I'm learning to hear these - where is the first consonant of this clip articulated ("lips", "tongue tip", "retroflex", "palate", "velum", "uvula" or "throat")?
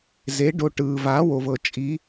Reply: tongue tip